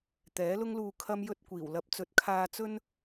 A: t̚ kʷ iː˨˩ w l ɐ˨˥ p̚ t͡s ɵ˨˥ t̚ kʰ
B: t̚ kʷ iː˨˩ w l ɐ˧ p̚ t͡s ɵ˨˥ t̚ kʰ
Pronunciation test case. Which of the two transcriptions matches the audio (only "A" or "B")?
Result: A